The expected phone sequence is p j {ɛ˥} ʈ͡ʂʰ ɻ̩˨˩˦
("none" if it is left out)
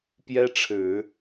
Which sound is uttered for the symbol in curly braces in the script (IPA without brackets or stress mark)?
ɛ˥